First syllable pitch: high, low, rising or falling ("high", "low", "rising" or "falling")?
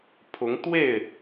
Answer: rising